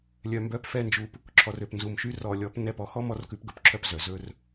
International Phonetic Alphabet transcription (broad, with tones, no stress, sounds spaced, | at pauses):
lʲ œ˨ m b œ˨˦ p f ɛ˦ n d͡ʒ u˧ p | ǁʰ ɔ˨ r ø˨ p n z u˨ m ʃ y˧ r ɔ˨ lʲ ɔ˨˦ p n ɛ˦˨ p ɔ˧ x ɔ˦ m ɔ˦ r k ʉ˧ p ɡ ɵ˧ p ǁʰ œ˦ p z œ˨ z ɵ˦ r